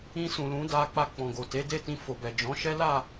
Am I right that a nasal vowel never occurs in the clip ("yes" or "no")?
no